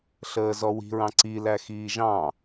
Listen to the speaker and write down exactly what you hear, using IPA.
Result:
ɬ əː z ɔ w i̤ ɹ ɑ̃ ǀ i l æ x iː ʒ ɑ̃

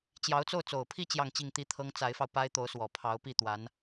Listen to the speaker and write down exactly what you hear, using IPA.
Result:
t͡ɕ j ɑ˧˥ ʊ̯ t͡s o˥˩ ʊ̯ t͡s o˨˩ ʊ̯ pʰ i˥˧ t͡ɕ j ɑ˥˧ ŋ t͡ɕ i˥˩ ŋ t̪ i˥ t̪ʰ ɤ˥ ŋ t͡s a˧˥ ɪ̯ f ɑ˧ ʊ̯ p a˥ ɪ̯ t̪ o˧˥ ʊ̯ s w ɔ˨˩ pʰ ɑ˧˥ ʊ̯ p i˥˩ t̪ w a˧˥ n

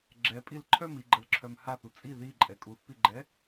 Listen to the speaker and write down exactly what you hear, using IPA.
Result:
ɡ͡ǁ ɛ pʼ i l ǃʰ œ m i ɡ͡ǃ ə l ǁʰ œ m h a θ u t͡sʼ i ð i ǃʼ ɛ kʼ u θ p i ɡ͡ǃ ɛ

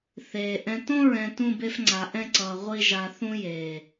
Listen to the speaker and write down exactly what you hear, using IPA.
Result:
θ eː˨ ʔ ɛ̃˨ t õ˦ ɹ ɛ̃˨ t ũ˦˨ b e˦ f ŋ͡ǀ a˨ ʔ ɛ̃˦ ǀ ʌː˨ ʁʷ i˦˨ ʒ a˨ θ ũ˦ j eː˨

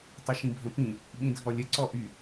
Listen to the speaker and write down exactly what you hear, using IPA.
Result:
tˤ ə ʃ ĩ bʱ ə̃ p ĩ | ɓ ĩ dʱ ɔ lʲ ə ǀ ɔ ʔ y

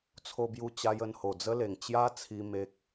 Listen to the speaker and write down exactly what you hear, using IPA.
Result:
t͡sʰ o˧ b j u˧ t͡ɕ a˧ j ə˧ n h o˨˩ d͡z ə˦ l e˨˩ ŋ t͡ɕ j a˦ t͡sʰ i˧ m e˦ k̚

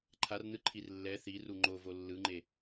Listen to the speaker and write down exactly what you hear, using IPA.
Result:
ǃʰ a r n ɯ ǃʰ i r lː ɛ θ i r u ŋ͡ǃ o v o lː ɯ ŋ͡ǃ e

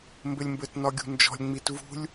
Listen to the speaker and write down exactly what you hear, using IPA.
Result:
m b ɘ lʲ m b ɘ t n ɒ ɡʲ ṳ n d͡ʒ ɔ̤ lʲ ŋ͡m i t v ṳ lʲ

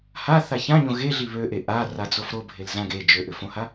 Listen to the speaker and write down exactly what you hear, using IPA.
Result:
h a θ a ç ã ɲ õ ɣ e ɮ i β ø ʔ e ʔ a r a d͡z o f ɾ o bʱ e l z ã ɡ e d͡ʒ ø ʔ ʏ f õ h a

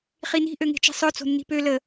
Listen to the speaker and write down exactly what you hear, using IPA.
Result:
χ i n i̤ ʔ ø ŋ e̤ t͡ʃ i̤ sˤ œ t͡s o̤ nː i̤ p ø l ə

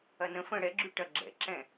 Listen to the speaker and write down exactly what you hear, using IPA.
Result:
ɐ n ə̃ f ə̃ ɽ ɛ ɡ͡ǁ y ʈ ɐ ɡ͡ǁ ɛ̰ ǁ ɛ̃

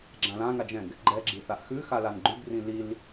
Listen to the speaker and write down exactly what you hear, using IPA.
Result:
ɡ͡ǁ ã l ã ŋ a d͡ʒ ɛ̃ ɡ | ɡ͡ǃ ɛ ɡ͡ǁ i θ a ʔ x ʉ x a l a n ɡ͡ǃ ʉ b r ĩ l i l

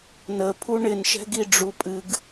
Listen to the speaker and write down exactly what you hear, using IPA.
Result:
n ə pʰ u ɳ ɪ n ʃ ɛ̤ ɡ i ɖ͡ʐ u pʼ ɨ ɡ

